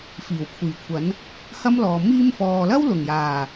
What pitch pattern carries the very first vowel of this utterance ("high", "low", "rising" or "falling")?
low